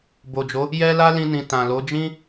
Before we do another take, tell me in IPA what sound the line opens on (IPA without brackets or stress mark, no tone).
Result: b